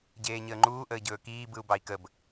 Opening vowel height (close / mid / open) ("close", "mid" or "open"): mid